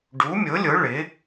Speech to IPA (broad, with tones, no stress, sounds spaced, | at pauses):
ɖ u˨˥ mʲ ʊ˨˥ lʲ ʊ˨˥ ɭ ɪ˨˥